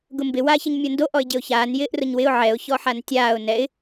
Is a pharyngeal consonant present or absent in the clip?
present